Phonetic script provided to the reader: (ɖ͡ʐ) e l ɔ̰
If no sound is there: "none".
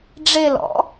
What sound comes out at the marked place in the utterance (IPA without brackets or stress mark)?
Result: ɖ͡ʐ